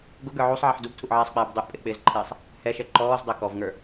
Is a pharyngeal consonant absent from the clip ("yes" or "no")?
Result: no